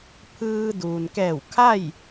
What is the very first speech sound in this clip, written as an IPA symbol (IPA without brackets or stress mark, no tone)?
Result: pʰ